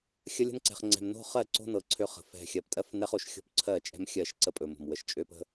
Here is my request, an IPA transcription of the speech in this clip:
xʲ ə˦ lʲ ə̤˦ n ǀ ɛ̤˨ χ ŋ͡ǀ ɛ̤˨ m n o̤˦ χ ɜ˦˨ ǀ o̤˦ n ɤ˨ ǀʰ ø˦ χ ə̤˨ f ɛ̤˨ xʲ ɜ˨ p tʼ ɜ˦ f n ɛ˦ χ o˦˨ ʃ xʲ o̤˦ p ǀʰ ɜ˦˨ t͡ʃʼ ɛ̤˦ m xʲ ɜ˦˨ ʃ ǀ ə˦ pʼ ɵ˨ m o̤˨ m w ə˨ ʃ t͡ʃʼ ø˦ p ə̤˦

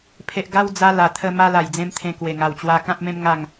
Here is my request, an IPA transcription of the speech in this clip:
pʰ e˨ ʔ ɡ a˧ w d͡z a˧ l a˨˩ t̪ʰ ə˧ m a˧ l a˨˩ j d͡z ẽ˧ m t̪ʰ ẽ˧ k w e˨˩ ŋ a˨˩ w t͡ɕ w a˧ k ã˦ p̚ m ẽ˦ m ŋ a˥˧ ŋ

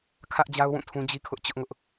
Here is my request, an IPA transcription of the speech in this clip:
kʰ ä˦ ʔ d͡ʑ a˦ ʊ̯ w ũ˦˨ tʰ ũ˦ d͡ʑ i˦ kʰ ʊ˦ ʔ t͡ɕ ʊ˦ ʔ ŋ ʊ˦ ʔ

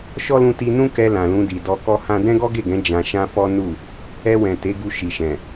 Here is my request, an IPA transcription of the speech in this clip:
ʃ ɔ˦ l ũ˧ t i˧ n ũ˦ k ɛ˧ l ã˨ l ũ˧ d i˨ d ɔ˧ k ɔ˦ h ã˦ d ɛ̃˦ ɡ ɔ˦ ɡ e˦˨ ɡ ɛ̃˨˦ d͡ʒ ã˧ ʃ ã˦ f ɔ˦ n u˦˨ | ɛ˧ w ɛ̃˨ t e˨˦ ɡ u˧ ʃ i˨ ʃ ɛ̃˨

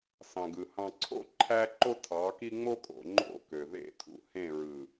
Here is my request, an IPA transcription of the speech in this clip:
s ɑ̃˨ ɡ ɯ˨ h ɑ̃˨ ǀʰ o̰˦ ǃʰ æ˦ ǃ o˦ tʰ ɑ˨˦ k i˦ ŋ͡m o˦ kʼ o̰˨ ŋ͡ǃ o̰˦˨ k ø˨ ð ḛ˦˨ tʼ ṵ˨ h ẽ˦˨ ɹ ɯ˨

